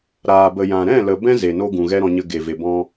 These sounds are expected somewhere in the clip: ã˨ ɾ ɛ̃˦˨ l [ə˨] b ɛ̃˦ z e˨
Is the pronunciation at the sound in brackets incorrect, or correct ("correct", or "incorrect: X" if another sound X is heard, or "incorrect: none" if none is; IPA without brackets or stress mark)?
correct